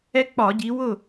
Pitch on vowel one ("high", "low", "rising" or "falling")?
high